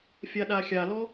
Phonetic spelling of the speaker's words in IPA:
fʲaɗaxʲalɔ

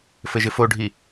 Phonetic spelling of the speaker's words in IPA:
fɘʒɪfoɖʱi

